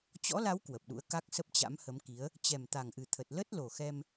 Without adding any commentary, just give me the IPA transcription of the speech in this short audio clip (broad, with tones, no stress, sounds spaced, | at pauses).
t͡ɕ ɔ̰˧˥ l a˨˦ w k w ə˨˩ p̚ ɗ ṵ˧˥ ə̯ k a˦˥ k̚ s ə˦˥ p̚ t͡ɕ a̰˧˥ m h ə˨˦ m k i˨˦ ə̯ | t͡ɕ ɛ˨˩ m t̪ a˨˩ ŋ ʔ ɨ˨˩ t̪ʰ ə˨˩ t̚ l ə˦˥ t̚ l o˨˩ x ɛ˧ m